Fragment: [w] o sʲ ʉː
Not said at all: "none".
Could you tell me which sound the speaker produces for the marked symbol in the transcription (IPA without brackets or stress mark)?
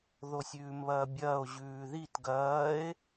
ð